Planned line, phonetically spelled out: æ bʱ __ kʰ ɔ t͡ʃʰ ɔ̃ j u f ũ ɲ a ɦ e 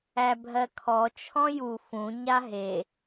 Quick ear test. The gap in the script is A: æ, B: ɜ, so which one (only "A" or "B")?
B